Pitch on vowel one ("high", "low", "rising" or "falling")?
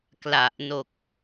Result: low